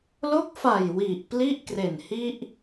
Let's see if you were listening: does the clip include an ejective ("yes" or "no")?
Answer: no